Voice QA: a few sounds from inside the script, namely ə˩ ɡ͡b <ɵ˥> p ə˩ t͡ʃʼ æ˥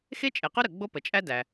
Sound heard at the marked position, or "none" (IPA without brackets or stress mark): o˥